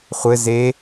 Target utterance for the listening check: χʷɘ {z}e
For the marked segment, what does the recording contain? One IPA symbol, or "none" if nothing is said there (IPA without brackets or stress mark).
z